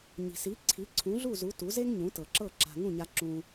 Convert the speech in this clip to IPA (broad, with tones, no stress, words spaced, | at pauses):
ɲi̤˩si˩˥ ǀʰi˩˥ǀʰũ˩˥ɮu˥˩zu˩˥ tu˩˥ze˥ŋɲũ˩˥ tɤ˩ǁɤ˥˩ ǁa̤˧ ŋũ˥˩ɲa˧ ǁũ˧